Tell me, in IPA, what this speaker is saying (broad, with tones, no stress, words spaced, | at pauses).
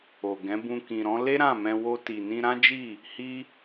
o˨ɡɛ̃˨˦bũ˧ kĩ˨ɾɔ̃˨˦ le˦ɾã˦˨mɛ̃˧ wo˧ ti˨nĩ˧ɾã˦d͡ʒi˦˨ | hi˦